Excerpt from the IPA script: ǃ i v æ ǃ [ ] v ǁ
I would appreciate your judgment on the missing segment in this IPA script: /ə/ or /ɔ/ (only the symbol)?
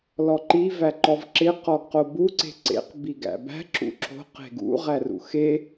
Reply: ɔ